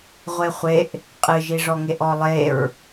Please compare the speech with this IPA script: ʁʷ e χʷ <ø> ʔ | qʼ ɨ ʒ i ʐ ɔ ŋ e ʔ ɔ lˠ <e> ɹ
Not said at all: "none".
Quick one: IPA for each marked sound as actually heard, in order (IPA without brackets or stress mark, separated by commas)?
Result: e, e